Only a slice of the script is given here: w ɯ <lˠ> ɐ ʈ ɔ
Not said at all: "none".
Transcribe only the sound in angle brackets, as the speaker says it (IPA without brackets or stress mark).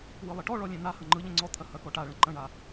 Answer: lˠ